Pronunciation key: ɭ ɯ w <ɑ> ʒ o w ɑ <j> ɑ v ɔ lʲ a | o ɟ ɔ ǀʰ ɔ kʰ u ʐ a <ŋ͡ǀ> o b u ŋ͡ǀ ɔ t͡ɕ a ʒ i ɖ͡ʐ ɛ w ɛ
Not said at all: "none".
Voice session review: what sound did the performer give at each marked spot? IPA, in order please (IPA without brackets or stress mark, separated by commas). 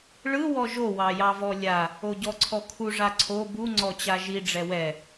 ɔ, j, ǀʰ